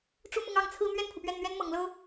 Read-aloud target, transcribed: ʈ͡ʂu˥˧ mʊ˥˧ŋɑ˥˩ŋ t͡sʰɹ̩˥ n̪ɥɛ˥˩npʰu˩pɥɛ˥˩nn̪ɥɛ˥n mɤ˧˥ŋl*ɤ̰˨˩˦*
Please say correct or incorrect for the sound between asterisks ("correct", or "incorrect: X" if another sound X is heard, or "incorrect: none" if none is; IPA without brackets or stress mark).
incorrect: ɤ˥